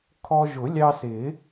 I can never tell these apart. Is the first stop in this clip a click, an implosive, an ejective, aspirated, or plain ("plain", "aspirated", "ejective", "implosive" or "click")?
aspirated